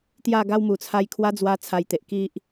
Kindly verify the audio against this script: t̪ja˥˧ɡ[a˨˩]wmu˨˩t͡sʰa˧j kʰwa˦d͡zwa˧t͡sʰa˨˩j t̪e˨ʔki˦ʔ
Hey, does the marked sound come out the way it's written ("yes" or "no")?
no